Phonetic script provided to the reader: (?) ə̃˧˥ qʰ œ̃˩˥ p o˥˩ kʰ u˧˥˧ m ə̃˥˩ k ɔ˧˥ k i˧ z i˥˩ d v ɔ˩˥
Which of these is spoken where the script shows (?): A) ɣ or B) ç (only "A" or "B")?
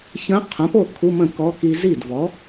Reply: B